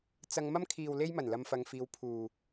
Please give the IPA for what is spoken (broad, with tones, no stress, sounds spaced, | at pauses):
t͡s ɐ˧ ŋ m ɐ˥ m kʰ iː˨ w l e˧ j m ɐ˨˩ n l ɐ˨ m f ɐ˧ ŋ f iː˧ w pʰ uː˨